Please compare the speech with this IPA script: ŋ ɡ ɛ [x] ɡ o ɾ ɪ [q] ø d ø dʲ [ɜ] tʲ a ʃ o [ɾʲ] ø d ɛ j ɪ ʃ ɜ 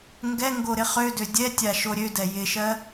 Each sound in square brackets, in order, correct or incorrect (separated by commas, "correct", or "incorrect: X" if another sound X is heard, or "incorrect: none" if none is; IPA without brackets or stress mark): incorrect: ŋ, incorrect: χ, incorrect: ɛ, correct